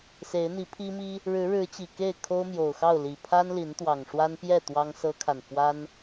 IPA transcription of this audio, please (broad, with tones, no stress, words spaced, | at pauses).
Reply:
se˨˦ɪ̯n̪i˨˦pʰi˦mi˦ | ɻɻ̩˨˦ɻɻ̩˨˦ t͡ɕi˨˩ ke˥˨ɪ̯ kʰo˦ʊ̯mjo˨˩ʊ̯xɑ˥˨ʊ̯ li˨˩ pʰa˦nli˨˦nt̪wɑ˨˩ŋ ʂwa˦npjɛ˥˨ t̪wɑ˦ŋsɤ˦kʰa˨n fwa˦n